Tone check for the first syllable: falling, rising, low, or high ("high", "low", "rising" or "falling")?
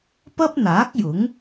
high